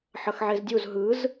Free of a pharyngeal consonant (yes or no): no